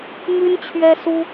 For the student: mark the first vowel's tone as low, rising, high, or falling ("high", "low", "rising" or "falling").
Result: high